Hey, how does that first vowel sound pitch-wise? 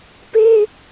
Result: high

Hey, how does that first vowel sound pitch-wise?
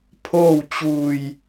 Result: falling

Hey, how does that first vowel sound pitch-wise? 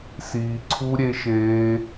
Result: low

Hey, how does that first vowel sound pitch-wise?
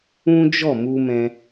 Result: high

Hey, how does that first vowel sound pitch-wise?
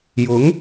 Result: rising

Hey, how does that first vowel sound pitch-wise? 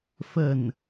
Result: falling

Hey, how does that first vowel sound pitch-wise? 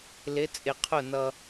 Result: rising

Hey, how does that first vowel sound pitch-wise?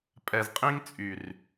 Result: low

